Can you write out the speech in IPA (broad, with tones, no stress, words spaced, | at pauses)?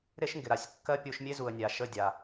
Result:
ɾe˦ʃŋɡɪ˨ɾa˨sʲkːɜ˦ pʲu˧ʃmʲe˦zu˨ə̯nʲa˨ ʃə˦˨dʲa˨